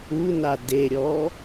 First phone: u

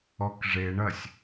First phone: ɔ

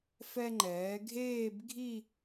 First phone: f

